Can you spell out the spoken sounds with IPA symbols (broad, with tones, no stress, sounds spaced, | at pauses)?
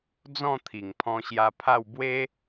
d͡z ɔ̃˥˧ t̪ʰ i˨˩ ŋ pʰ ɔ̃˧ ɕ j a˧ pʰ a˥˧ w b w e˦